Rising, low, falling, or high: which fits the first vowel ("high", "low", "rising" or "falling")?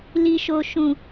low